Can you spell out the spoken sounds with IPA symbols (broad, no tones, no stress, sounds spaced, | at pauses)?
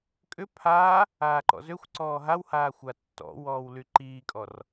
kʼ ʏ pʰ aː | aː ǃ ɔ̰ z ø xʷ ǀ ɔː ɦ a w h aː xʷ a tː ɔ̰ w ɔː w l y ǃ iː kʼ ɔ r